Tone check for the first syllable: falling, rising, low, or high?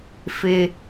high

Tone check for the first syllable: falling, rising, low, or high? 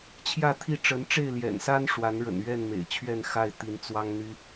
falling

